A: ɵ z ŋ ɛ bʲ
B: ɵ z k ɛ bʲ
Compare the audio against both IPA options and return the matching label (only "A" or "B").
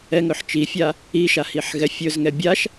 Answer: A